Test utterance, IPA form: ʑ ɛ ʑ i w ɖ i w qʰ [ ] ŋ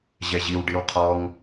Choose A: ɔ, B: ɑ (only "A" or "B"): A